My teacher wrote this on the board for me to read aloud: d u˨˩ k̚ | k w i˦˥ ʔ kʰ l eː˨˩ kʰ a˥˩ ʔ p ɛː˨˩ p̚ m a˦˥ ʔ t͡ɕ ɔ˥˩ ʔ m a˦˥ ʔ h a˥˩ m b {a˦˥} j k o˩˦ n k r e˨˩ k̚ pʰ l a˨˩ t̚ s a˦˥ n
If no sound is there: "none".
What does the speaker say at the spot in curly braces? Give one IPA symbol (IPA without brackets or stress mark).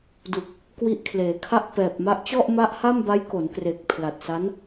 a˦˥